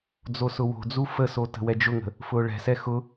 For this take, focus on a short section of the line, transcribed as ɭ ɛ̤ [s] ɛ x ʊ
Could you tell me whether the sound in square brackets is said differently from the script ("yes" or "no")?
no